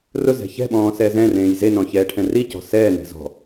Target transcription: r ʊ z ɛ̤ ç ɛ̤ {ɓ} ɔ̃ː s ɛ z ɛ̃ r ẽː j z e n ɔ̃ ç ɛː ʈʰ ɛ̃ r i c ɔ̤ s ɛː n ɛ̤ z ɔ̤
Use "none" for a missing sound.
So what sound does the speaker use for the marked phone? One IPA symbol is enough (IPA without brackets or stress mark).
ɓ